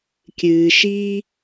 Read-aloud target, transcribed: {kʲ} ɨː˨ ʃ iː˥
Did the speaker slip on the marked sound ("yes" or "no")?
no